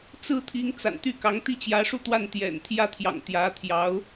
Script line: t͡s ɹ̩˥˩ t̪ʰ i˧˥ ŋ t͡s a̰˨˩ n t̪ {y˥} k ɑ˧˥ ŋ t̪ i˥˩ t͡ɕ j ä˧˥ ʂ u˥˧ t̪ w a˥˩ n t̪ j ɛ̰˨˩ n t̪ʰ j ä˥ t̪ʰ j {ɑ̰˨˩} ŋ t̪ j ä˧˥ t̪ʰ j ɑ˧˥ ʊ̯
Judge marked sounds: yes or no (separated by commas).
no, yes